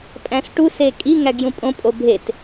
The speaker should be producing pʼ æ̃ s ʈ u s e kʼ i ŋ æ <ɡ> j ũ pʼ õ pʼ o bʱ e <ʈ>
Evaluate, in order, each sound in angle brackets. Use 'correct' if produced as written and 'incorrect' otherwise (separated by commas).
correct, incorrect